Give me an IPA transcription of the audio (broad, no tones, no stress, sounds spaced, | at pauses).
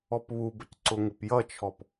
ɔ p β u b ə c ǀ ʊ ŋ ɪ p j ʌ t͡ʃʰ ɔ p